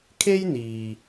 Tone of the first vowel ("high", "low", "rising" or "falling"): high